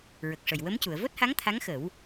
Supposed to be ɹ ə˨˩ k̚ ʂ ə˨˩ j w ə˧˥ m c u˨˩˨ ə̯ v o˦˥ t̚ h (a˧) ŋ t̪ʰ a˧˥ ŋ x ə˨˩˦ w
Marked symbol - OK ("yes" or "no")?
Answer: no